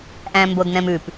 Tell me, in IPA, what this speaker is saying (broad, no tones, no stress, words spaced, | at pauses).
ʔæ̃mbodnɛ̃mʉp